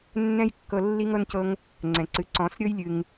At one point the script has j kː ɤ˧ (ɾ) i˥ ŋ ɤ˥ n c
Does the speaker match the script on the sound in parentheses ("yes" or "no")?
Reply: no